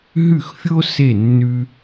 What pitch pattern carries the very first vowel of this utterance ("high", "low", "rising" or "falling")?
falling